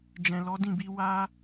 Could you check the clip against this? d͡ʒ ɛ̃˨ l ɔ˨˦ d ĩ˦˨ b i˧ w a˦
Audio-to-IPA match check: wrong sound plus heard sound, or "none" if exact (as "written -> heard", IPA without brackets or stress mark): none